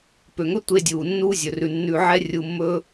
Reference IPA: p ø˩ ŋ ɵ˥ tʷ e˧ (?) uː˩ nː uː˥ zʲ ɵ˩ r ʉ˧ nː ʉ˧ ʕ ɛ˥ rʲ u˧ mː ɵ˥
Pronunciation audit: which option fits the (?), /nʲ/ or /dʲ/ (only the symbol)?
dʲ